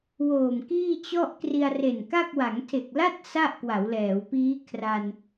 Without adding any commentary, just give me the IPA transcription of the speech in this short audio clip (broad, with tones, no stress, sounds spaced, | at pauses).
w oː˨˩ m k iː˥˩ t͡ɕ ɔ˥˩ ʔ k r i˧ a̯ r e˨˩ n k a˥˩ k̚ w a˩˦ ŋ tʰ e˨˩ k̚ l a˥˩ t̚ s a˥˩ ʔ k w a˩˦ w l ɛː˩˦ w p iː˦˥ kʰ r a˧ n